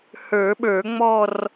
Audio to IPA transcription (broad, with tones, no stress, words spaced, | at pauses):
hə˞˨˩˦ɓə˞˨˩˦ŋ͡mɔ˥˧r